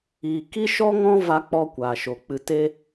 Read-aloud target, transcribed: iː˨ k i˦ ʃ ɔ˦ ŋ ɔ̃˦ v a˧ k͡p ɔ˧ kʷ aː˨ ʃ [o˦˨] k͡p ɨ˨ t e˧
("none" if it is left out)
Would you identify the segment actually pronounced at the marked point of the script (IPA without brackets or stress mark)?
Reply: o˨